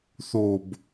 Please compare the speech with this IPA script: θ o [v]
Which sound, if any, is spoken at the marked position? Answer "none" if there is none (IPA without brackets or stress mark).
b